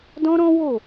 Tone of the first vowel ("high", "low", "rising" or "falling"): high